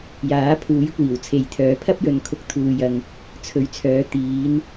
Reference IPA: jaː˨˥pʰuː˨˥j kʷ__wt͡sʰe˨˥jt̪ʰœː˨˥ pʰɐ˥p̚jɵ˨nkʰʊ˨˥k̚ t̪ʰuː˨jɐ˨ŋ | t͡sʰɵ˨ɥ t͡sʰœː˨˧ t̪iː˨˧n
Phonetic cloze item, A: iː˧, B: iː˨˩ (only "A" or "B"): B